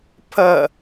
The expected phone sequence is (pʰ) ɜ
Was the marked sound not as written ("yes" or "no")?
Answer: no